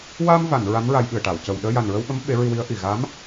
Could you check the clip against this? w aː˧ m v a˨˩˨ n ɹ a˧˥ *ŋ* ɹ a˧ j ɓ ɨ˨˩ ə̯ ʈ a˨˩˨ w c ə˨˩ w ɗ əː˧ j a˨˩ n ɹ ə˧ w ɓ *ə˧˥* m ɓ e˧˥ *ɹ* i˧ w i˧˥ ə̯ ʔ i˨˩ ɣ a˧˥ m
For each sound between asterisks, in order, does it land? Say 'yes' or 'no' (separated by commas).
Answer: no, yes, yes